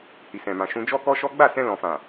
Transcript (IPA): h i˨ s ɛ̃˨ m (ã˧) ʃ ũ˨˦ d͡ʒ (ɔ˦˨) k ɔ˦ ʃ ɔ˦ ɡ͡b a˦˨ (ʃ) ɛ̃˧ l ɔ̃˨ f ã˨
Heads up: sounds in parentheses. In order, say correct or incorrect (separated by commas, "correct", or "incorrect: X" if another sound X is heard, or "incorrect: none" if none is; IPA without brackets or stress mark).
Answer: incorrect: ã˨, incorrect: ɔ˦, incorrect: s